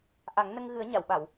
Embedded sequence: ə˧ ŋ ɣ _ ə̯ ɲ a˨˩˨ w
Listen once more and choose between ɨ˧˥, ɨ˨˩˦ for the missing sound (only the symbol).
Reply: ɨ˨˩˦